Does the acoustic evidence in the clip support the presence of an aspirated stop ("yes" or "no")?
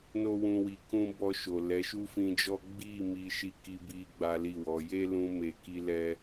no